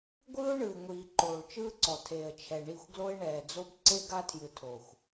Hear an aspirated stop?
yes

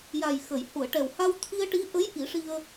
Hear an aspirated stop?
yes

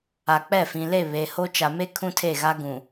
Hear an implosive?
no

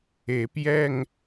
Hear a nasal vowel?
no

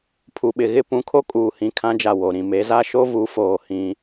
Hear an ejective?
yes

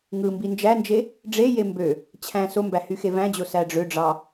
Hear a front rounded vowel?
yes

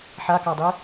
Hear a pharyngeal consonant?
yes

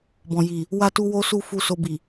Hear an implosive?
no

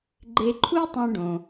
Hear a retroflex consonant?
yes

